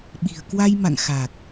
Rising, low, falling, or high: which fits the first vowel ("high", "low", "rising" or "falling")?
low